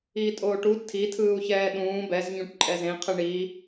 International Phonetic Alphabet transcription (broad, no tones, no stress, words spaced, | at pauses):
iːtʼoːʈu tʰi tʰɯːu̯çɛːɗũː bɛz ɲũʈǃʼɛzẽ qʰɯɳiː